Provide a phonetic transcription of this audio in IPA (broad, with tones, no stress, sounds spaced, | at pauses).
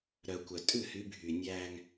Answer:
ɾ œ˨ kʷ œ˨ tʼ ʉ˦˨ h y˨˦ bʱ y˨ nʲ æ˦ ŋ